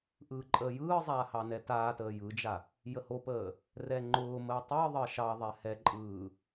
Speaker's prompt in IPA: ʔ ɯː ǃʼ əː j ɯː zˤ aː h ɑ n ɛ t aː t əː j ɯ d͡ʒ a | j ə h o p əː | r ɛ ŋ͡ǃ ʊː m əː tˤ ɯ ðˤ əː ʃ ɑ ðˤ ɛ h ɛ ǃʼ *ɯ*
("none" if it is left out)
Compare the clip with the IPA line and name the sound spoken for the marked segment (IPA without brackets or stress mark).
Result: ɯː